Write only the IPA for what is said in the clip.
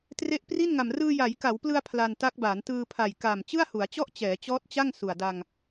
t r e˦˥ ʔ p r i˥˩ n ŋ a˨˩ m r ɯː˧ j a˩˦ j k a˩˦ w p l ɯ˧ a̯ pʰ l a˧ n t a˦˥ k̚ b aː˩˦ n t ɯː˧ pʰ a˨˩ j k a˨˩ m t͡ɕ ɯ˥˩ a̯ h u˩˦ a̯ t͡ɕ ɔ˥˩ ʔ t͡ɕ ɛː˩˦ t͡ɕ ɔː˦˥ t̚ t͡ɕ a˥˩ ŋ s u˨˩ a̯ d a˧ ŋ

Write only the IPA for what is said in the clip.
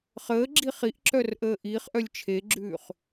χ əː ɡ͡ǁ i χ i ʔ ǁ œ r ʔ əː ʔ i χ ʔ œ lʲ t͡ʃʰ e ɡ͡ǁ ʉː χ

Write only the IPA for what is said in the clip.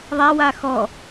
ðˤ a w a x ɔ

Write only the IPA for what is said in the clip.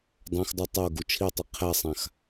dˤ ã x dˤ u tˤ o ɡ u t͡ʃʰ i tˤ i qʰ ɛ sˤ ã x

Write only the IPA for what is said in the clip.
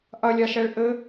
ʔ ɐ lʲ a ʃ ɛ ɭ ʔ ɘ

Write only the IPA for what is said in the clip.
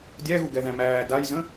dʲ æ ɣ u ɡ ɛ ð æ̃ m æː d a j z ə̃

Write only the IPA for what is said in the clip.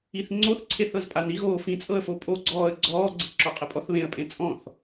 i θ ŋ͡ǀ o θ ǀʰ e θ ɤ z pʼ a n i ɣ oː f ĩ t͡sʼ ɤ ə̯ f o pʼ o ɡ͡ǀ ɔː ə̯ ɡ͡ǀ ɔː ɡ͡ǀ ɤ ǁ ɔ qʼ ɛ pʼ ɔ θ β ẽ ə̯ pʼ ẽ t͡sʼ ɔ̃ θ

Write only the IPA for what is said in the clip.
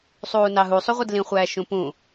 sˤ uː n ɑ ɦ u sˤ u ʁʷ e d l ĩ χʷ æː ʃ ũ p ũ

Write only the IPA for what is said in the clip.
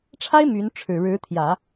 ʈ͡ʂʰ a˥ ɪ̯ m y˧˥ n ʈ͡ʂʰ ɻ̩˨˩ ɻ ɻ̩˧˥ t̪ʰ j ä˨˩˦

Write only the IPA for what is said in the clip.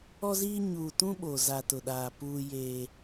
ɔ˦ z iː˦ ɲ uː˨ t ũ˦ ɓ o˨ z a˨ t ʊ˨ ɗ aː˨ p uː˦ j eː˦

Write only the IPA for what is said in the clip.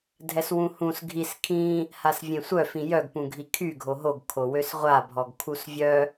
dʱ ɛ s w ũ h ũ s ɡʱ i s kʰ ĩ | h a s vʲ ẽ sʷ œ f ĩ j œ ɡ p ũ ɡʱ i kʰ y ɡʱ o ɦ o ɡ kʰ o w ø s ʁʷ a bʱ ɔ ɡ kʰ u s vʲ œ

